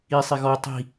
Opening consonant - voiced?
no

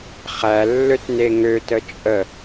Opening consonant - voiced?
no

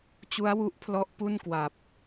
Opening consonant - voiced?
no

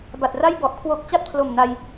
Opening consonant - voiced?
yes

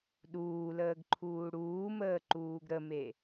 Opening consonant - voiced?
yes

